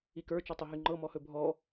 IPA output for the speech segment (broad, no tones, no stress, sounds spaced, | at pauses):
i k ə˞ t͡ʃ ɔ tˤ ɵ ɦ y ŋ͡ǃ ɤ m ɔ h ɵ bʱ ɔ